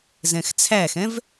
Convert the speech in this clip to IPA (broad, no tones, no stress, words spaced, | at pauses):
zɛ̃xt͡sʰæxɛ̃v